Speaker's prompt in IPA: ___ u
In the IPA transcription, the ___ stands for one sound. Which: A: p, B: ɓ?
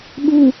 B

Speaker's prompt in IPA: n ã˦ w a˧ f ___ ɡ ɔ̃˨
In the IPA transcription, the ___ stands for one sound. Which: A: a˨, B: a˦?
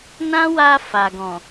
A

